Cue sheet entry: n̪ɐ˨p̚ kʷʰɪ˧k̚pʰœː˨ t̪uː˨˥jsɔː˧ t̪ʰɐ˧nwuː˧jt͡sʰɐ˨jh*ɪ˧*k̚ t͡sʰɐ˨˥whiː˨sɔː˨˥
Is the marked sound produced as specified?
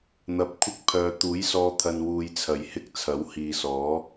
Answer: no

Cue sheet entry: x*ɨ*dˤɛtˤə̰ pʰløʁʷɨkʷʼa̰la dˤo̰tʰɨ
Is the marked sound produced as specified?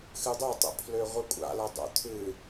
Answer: yes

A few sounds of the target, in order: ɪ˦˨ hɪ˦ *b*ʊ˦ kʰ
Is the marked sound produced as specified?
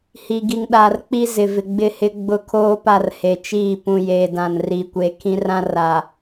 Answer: no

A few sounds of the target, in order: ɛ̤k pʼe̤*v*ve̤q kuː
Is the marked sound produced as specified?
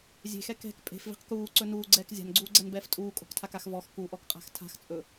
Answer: no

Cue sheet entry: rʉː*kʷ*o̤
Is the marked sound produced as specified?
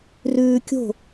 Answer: no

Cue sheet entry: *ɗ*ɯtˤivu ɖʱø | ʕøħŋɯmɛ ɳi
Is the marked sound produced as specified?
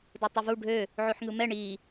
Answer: no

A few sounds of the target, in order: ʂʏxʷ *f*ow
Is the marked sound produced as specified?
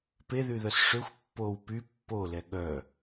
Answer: no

